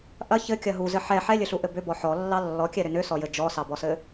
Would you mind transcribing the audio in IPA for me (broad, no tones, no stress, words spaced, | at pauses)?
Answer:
ʔɐ çɘkʲɐ ɦuzɘ ħɛ ħɛlʲɘɬuʔɘ bʏbɔ ħɔlːɑ lːɔkʲɛɾʏ nʏsɔjɘ d͡ʒɔsɑbɔsɘ